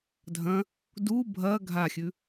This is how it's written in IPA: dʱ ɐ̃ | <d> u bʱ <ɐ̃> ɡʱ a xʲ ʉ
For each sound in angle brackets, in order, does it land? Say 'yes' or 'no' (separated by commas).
yes, no